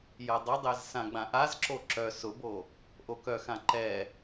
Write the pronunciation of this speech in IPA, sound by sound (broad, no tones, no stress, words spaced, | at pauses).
jɐdˤədˤɛz sãɡ͡bãʔazǁo ǁœ sʊbo | ʔokœxã ǃɛ